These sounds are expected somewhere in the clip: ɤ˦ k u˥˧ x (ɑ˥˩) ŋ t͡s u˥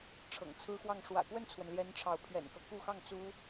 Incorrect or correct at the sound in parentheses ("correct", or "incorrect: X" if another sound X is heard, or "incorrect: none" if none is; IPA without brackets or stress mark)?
correct